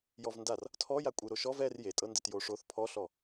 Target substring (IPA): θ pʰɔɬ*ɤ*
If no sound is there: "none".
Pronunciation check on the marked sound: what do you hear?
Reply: ɔ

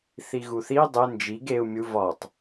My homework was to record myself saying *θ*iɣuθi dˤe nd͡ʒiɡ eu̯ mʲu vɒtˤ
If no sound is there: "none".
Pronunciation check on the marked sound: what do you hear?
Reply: θ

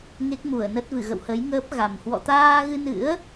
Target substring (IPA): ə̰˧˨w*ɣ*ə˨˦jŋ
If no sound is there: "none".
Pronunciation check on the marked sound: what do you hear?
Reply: h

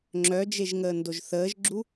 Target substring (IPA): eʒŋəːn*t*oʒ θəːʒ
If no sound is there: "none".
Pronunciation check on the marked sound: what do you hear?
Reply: d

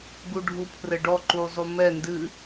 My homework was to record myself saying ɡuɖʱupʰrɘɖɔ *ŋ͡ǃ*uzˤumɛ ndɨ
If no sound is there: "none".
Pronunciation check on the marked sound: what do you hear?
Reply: ǃ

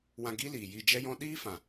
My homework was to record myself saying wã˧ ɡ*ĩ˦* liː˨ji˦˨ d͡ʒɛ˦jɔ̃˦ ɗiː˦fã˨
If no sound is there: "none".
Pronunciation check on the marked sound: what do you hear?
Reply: i˦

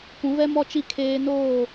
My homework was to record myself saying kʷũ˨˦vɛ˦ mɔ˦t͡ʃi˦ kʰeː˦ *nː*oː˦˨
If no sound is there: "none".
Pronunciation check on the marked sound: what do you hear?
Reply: n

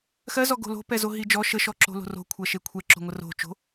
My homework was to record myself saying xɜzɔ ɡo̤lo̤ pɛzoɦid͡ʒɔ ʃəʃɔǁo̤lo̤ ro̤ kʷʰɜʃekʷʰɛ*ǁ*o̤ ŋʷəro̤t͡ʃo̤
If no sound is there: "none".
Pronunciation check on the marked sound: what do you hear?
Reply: ǁ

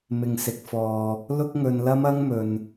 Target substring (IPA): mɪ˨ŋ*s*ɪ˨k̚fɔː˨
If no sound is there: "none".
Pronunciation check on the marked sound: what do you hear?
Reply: s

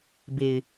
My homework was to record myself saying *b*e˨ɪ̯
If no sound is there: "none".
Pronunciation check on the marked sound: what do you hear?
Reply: b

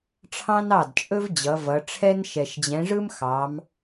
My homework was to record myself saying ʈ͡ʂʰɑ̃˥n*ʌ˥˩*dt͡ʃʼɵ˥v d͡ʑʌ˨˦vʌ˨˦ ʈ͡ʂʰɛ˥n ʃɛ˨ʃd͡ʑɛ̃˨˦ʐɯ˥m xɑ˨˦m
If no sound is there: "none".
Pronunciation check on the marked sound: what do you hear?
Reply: ɑ˥˩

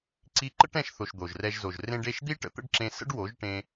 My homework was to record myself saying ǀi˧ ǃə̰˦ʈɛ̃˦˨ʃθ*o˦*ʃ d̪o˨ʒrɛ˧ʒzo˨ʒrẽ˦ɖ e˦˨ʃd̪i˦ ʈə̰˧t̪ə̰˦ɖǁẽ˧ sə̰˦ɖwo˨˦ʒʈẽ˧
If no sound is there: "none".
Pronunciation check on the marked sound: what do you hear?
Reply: o˨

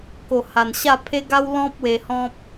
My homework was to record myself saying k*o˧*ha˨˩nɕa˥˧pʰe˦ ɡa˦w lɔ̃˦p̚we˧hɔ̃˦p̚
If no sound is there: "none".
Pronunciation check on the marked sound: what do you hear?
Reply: o˨˩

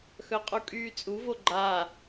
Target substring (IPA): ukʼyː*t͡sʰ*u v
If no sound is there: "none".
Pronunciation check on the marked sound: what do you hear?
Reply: t͡sʼ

